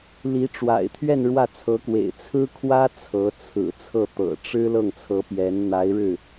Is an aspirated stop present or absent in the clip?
present